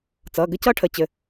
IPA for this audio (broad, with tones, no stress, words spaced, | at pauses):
t͡sʌ˩˧˩ɡə˥cʌ˥ ʈʰə˧˩t͡ɕɘ˧˩